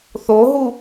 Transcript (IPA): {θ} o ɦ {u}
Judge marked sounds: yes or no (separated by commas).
yes, yes